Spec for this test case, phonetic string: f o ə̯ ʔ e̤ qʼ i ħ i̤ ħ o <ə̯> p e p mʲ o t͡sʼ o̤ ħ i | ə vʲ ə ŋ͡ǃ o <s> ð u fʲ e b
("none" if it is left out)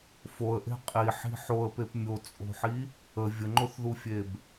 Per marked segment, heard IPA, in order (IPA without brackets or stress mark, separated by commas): ə̯, θ